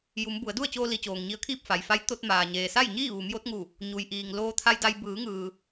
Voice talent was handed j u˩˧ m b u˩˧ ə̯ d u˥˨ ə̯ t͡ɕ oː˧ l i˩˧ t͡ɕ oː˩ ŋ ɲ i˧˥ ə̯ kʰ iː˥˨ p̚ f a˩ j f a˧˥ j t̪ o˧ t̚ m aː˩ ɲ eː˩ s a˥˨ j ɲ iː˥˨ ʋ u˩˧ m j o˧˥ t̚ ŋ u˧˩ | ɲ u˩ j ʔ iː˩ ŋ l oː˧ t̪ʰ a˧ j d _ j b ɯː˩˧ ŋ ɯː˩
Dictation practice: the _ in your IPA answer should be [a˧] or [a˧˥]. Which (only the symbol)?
a˧